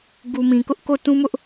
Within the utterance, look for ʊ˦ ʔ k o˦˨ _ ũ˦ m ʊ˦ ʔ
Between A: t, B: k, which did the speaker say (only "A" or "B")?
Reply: A